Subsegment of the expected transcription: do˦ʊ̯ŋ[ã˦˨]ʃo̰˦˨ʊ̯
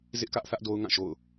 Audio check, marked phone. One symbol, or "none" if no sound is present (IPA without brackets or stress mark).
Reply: ã˦˨